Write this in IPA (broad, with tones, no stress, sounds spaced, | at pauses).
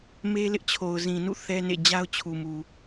m e˦ l ɪ˦ ʔ t͡ɕʰ o˨ ʊ̯ z ĩ˨ n ṵ˦˨ θ ɛ˦ n ḛ˦˨ d͡ʑ a˦ ʊ̯ t͡ɕʰ u˨ m u˨